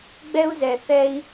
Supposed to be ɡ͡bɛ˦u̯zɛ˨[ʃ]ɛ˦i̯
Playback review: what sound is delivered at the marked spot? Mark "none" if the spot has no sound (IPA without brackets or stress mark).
θ